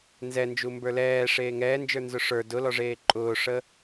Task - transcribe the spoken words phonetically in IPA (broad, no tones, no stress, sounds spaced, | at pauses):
n z ɛ n d͡ʒ u m b ə˞ l ɛː ʂ eː ŋ ɛː n d͡ʒ ə˞ n z ʊ ʂ ə˞ d ʊ l ɔ ʐ eː ǃʼ ʊː ʂ ə